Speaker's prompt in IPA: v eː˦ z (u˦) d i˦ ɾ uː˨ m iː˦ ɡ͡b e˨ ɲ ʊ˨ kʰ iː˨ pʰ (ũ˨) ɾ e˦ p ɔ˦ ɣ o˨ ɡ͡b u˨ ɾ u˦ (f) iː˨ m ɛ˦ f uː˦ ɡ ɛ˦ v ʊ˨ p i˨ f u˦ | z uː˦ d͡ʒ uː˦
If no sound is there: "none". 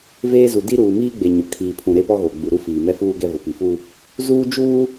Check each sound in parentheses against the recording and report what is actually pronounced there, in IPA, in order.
u˨, ũ˨, f

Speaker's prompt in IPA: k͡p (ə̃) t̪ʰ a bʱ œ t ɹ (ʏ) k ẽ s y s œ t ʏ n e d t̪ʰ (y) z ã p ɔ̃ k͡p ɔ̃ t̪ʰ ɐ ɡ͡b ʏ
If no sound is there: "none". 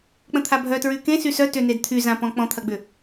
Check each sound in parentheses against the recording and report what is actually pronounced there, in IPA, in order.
ə̃, y, y

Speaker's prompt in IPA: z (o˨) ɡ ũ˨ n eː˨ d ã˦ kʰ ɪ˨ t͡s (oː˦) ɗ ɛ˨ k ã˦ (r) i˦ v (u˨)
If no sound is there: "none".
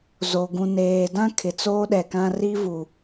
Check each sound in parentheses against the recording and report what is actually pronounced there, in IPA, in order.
o˨, oː˦, r, u˨

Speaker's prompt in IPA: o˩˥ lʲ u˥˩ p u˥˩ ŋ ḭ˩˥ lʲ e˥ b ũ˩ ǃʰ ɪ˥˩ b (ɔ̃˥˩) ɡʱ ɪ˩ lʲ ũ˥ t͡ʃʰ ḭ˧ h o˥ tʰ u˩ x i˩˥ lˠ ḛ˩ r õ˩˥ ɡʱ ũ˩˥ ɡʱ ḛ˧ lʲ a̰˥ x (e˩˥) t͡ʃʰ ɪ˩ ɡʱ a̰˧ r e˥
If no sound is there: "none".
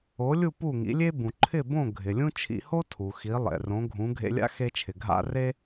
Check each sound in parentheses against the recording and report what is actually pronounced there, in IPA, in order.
õ˥˩, e˧

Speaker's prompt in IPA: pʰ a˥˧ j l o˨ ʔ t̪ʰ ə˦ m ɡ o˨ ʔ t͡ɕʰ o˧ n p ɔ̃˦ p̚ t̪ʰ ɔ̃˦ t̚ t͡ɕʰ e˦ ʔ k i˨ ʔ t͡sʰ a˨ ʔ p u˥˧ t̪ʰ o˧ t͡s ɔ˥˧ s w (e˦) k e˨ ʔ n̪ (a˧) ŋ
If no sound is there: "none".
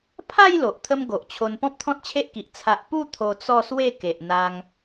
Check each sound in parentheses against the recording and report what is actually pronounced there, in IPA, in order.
e˥˧, a˧

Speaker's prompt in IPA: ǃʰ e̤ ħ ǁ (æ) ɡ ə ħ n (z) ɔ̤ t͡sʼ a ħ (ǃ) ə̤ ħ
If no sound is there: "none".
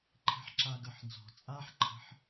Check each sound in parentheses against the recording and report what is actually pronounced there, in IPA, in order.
a, z, ǃʰ

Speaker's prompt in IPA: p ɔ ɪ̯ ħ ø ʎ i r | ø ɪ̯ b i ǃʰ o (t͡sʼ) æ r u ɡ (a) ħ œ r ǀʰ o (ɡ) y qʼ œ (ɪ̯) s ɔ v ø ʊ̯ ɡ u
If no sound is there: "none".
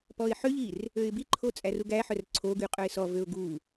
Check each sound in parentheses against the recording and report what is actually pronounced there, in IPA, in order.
t͡sʼ, æ, ɡ, ɪ̯

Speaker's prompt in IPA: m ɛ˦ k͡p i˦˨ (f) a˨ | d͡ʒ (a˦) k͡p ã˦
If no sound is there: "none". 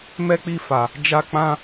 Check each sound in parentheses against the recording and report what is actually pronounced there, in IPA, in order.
f, a˦

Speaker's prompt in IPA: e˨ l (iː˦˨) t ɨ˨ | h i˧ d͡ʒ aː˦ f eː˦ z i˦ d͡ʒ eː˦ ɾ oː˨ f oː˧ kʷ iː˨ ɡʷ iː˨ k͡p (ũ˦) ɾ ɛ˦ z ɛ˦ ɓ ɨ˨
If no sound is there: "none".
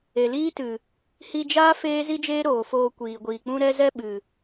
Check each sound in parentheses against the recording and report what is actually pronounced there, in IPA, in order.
iː˦, ũ˦

